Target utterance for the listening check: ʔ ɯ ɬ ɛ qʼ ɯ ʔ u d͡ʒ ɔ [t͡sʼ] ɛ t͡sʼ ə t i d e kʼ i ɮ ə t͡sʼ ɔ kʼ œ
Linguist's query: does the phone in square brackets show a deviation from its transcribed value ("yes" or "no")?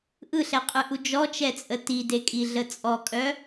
yes